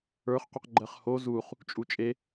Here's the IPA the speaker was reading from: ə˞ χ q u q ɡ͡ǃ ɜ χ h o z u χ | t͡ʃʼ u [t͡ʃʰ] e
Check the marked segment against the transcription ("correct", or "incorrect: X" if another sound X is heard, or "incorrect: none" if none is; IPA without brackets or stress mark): incorrect: t͡ʃʼ